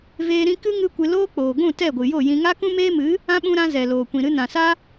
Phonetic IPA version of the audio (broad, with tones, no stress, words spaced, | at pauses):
veː˧ɾĩ˧kɨ˦ ŋɨ˦kʷɨ˧ loː˦k͡poː˨ɡʷũ˦˨ tɛ˦˨ɡʷɨ˨jo˦˨jĩ˧ ŋa˦kũ˦meː˦mɨ˨˦ | ã˦ɓũ˧ɾã˧ zɛ˨loː˨kʷĩ˨ ɾɨ˧nã˨sa˦